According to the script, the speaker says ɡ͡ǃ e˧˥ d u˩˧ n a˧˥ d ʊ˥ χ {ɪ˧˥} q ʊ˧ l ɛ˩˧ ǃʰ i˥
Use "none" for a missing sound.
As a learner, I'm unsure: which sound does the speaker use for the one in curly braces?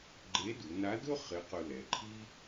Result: ɪ˧˥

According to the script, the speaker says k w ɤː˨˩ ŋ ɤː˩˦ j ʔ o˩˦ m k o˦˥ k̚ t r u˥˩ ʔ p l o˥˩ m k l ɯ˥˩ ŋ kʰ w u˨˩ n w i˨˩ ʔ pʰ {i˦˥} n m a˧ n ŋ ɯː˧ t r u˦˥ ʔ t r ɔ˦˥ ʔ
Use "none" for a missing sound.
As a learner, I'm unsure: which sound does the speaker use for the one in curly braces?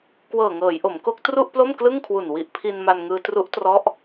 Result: i˧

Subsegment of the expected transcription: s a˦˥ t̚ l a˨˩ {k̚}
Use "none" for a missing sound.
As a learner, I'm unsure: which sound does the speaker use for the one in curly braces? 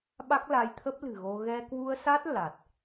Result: t̚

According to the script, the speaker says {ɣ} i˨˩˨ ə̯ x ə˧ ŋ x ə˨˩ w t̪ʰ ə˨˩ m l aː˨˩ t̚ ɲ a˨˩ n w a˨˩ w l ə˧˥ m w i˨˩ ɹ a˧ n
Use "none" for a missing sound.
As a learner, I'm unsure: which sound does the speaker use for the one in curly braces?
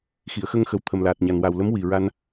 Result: x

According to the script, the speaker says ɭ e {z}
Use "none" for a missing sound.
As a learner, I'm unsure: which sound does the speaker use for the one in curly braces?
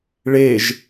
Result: ʒ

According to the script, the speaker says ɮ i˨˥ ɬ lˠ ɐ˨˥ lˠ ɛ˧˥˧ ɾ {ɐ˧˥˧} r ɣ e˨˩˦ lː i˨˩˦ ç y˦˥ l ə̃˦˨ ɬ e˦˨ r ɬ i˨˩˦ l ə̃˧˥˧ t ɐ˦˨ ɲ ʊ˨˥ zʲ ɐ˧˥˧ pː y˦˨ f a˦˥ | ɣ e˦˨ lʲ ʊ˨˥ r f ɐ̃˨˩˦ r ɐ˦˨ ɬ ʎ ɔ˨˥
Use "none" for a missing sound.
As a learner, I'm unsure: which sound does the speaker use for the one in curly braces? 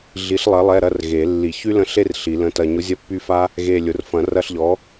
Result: ɐ˧˥˧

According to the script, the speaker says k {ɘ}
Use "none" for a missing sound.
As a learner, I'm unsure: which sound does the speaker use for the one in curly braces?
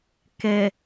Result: ɛ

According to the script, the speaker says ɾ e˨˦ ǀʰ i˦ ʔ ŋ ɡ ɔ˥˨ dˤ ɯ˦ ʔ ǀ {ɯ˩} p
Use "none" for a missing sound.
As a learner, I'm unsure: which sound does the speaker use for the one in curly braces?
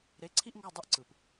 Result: ɯ˩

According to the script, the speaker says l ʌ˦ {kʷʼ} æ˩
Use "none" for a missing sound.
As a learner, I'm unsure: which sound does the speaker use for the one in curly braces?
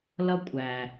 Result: kʷʼ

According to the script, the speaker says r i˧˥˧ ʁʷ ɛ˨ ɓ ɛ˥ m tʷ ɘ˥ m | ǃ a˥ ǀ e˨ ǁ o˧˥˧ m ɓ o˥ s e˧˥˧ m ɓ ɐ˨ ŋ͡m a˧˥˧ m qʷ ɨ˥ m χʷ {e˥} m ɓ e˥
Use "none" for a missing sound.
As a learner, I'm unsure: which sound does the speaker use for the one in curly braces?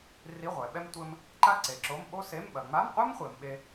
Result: e˨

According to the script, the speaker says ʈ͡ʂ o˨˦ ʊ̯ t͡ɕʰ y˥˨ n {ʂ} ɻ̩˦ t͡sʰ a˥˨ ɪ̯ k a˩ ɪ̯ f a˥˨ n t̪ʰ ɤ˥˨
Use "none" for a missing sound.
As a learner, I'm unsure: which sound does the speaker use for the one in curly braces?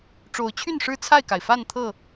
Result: ʂ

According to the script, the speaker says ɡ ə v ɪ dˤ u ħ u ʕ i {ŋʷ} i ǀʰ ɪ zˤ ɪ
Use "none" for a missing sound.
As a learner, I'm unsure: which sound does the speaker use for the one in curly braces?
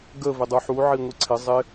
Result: ŋʷ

